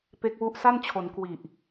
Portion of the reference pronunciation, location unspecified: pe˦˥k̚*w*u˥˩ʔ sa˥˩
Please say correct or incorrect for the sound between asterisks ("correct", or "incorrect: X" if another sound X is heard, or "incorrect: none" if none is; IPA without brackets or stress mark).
correct